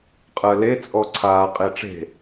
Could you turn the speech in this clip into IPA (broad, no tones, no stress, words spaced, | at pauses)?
qʼɜle t͡sʼɔǀʰaː qʼeʈ͡ʂe̤